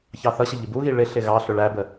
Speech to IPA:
çɑθʌɕə ʎɪbuɣi ɭɪɬɪ ɣɑɬʊ ɭæbə

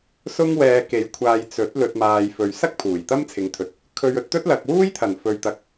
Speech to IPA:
sʊ˥ŋwɛː˧ke˨˧jkʷʰaː˧j t͡sɵ˨˥t̚ lɵ˨t̚maː˨j fɵ˨ɥsɐ˥k̚ pʰuː˨˩jt̪ɐ˥mt͡sʰɪ˨ŋt̪ʰɵ˨˥t̚ | kʰɵ˧ɥɵ˧t̚t̪ɵ˥t̚ lɐ˨k̚wuː˥j t̪ʰɐ˨˩nfɵ˨ɥt̪ɐ˨k̚

